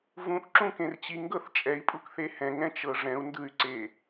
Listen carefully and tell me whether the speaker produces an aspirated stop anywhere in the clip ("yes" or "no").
no